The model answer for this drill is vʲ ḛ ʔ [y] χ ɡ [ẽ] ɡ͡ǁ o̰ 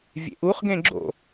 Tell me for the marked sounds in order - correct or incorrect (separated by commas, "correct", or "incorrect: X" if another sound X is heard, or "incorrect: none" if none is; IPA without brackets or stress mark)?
incorrect: u, correct